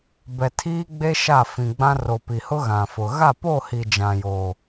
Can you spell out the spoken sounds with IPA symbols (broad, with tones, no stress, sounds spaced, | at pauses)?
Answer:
b ɛ˨ tʰ iː˦ ɡ͡b e˦ ʃ a˦˨ f ĩ˨ ɡ͡b ã˦ r o˨ p i˨ h ʊ˦ ɣ ã˨ f ʊ˨ ɣ a˦˨ p o˦˨ h i˨ d͡ʒ ã˨ j o˨